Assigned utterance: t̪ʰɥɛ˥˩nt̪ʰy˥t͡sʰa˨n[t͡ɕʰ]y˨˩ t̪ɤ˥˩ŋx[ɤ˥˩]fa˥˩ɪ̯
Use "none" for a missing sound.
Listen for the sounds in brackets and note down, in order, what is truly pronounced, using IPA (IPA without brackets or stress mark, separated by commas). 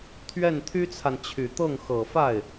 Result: t͡ɕʰ, ɤ˨˩